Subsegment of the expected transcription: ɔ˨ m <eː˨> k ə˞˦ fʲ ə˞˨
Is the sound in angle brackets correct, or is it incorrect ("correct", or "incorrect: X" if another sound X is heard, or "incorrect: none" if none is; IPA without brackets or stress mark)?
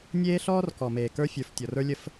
correct